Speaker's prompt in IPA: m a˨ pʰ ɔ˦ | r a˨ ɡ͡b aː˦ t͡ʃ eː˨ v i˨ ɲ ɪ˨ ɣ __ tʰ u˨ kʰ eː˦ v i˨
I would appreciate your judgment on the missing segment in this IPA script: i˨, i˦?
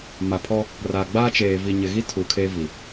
i˦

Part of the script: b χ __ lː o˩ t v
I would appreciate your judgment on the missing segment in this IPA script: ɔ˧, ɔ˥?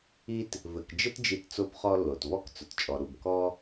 ɔ˧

